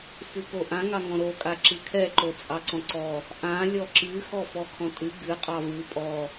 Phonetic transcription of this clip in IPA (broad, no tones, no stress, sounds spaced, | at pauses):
f ʉ k o ʔ ã ŋ ɑ ŋ ɔ̃ ɾ o kʼ a ǁ ɨ kʰ ɛ ǃ o t͡sʼ ɑ ǀ ɔ̃ ǀ ɔ | ʔ ã lʲ ɔ ǁ ɨ x ɔ f ɔ kʰ ɔ̃ tʼ ɨ ɡ ɨ qʼ ɑ v ɨ pʼ ɔ